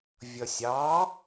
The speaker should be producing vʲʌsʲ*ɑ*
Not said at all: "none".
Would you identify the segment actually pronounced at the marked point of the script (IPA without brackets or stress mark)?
ɑ